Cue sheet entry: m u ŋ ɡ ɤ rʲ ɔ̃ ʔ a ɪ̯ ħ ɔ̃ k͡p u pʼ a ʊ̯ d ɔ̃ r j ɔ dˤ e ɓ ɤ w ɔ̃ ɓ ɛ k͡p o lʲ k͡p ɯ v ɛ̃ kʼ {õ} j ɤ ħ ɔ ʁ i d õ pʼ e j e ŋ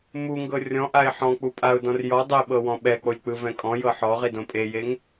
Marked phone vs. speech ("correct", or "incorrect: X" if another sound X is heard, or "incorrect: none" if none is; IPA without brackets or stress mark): incorrect: ɔ̃